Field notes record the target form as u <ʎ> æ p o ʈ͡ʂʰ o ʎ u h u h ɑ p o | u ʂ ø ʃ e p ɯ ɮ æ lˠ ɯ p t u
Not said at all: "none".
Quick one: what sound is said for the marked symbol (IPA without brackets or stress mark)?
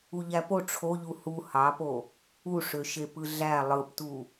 ʎ